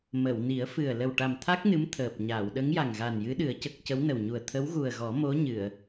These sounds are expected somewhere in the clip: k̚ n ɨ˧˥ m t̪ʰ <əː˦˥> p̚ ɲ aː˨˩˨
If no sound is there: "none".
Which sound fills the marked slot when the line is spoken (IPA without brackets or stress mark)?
əː˨˩